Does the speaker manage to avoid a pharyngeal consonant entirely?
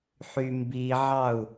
no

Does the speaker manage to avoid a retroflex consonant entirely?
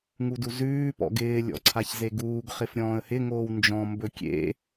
yes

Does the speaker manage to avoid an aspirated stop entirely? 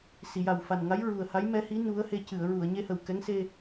yes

